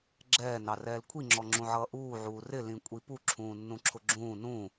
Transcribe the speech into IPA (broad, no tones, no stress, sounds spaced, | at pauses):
ɡ͡ǁ ɛː n ɑ r ɛː l kʷʰ i ŋ͡ǁ ɔ ŋ͡ǁ ũ ʕ ʌː ʔ uː ʕ uː r ɪ l ĩ kʷʼ i p u ǁʰ ũː nː ũ ǁʰ ʊ ɡ͡ǁ ũː n ũː